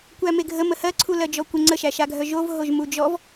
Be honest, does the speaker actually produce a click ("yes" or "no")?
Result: yes